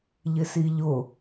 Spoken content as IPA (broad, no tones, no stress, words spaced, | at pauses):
ʎɪsiʎʊ